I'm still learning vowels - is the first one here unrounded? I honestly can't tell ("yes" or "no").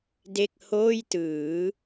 yes